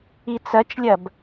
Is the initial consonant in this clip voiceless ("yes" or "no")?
yes